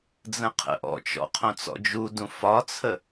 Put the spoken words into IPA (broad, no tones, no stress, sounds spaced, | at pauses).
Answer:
d͡z ə̃ qʰ ə̰ ʔ ɔ̰ t͡ʃ ɔ̰ qʰ õ t͡s ɔ̰ d͡ʒ u d ũ f ɒ t͡sʰ ə